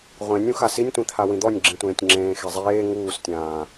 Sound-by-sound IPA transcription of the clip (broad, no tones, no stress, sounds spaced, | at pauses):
ʁʷ ẽ nʲ ũ x a s i nʲ tʷ ĩ t̪ʰ a w ĩ d̪ ɔ nʲ ɡ͡ǁ ĩ tʷ ẽː tʲ ŋ͡ǁ ẽː x e zˤ eː ŋ uː s tʲ ãː